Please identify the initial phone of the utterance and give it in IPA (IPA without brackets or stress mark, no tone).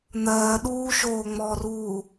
n̪